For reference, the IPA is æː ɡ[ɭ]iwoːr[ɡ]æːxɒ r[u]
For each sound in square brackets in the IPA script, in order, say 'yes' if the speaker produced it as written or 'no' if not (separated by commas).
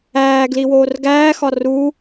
no, yes, yes